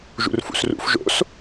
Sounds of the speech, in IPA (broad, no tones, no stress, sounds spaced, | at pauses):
ʒ ṵ r f ṵ s r ṵ f ʒ o̰ s